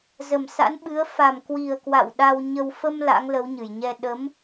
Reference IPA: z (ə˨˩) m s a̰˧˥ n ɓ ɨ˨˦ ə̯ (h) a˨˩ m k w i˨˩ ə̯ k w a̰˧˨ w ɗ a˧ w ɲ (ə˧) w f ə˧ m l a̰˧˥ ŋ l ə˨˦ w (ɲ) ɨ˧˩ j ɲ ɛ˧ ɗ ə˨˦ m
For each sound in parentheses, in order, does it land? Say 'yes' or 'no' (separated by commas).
yes, no, yes, yes